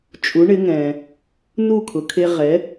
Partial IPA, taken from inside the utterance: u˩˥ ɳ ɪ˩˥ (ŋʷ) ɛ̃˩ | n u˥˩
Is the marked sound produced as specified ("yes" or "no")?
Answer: no